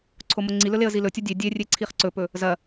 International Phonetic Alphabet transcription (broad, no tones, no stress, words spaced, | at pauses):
ǀʰomoŋ͡ǀilɵ leə̯zilɵtʲɐ dʲe dʲerʲe ǀʰiχǀɵpɵ | zɐ